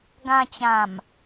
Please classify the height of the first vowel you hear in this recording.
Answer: low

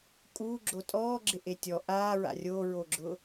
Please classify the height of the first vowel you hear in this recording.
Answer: high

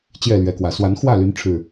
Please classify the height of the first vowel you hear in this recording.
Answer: mid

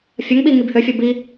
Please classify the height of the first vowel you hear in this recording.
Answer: low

